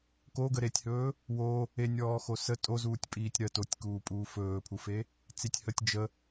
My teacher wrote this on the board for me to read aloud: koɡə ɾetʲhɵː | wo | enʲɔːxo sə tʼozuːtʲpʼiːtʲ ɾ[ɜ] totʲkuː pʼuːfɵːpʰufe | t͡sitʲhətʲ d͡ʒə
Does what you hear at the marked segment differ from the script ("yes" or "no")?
no